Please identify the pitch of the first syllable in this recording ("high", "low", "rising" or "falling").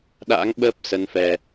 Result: rising